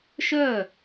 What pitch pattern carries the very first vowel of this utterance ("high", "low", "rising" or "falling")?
falling